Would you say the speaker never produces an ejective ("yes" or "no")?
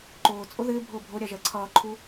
no